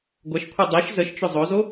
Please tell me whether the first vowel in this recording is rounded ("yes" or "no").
no